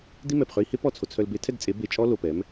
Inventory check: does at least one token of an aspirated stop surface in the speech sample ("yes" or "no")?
yes